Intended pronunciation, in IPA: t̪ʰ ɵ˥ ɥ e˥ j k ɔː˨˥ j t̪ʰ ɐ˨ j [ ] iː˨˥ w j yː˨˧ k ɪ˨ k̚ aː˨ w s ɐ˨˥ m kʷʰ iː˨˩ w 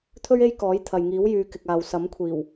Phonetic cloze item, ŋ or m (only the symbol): ŋ